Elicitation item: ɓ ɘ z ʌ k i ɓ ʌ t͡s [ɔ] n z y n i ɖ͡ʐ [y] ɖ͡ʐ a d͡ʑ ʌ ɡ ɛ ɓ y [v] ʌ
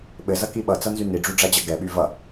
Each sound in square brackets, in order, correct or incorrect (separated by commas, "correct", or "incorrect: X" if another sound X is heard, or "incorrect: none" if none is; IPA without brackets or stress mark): incorrect: ʌ, correct, correct